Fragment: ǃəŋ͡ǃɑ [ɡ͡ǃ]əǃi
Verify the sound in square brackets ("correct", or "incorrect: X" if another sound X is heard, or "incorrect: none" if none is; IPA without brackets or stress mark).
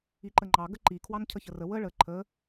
incorrect: ɡ